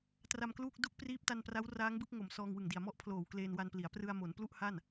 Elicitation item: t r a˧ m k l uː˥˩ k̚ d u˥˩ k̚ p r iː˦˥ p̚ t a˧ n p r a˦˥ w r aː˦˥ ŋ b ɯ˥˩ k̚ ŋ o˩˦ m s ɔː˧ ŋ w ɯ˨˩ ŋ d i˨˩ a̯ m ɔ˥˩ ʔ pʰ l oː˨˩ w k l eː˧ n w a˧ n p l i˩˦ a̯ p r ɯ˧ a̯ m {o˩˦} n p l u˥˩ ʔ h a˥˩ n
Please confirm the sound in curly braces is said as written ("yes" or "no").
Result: yes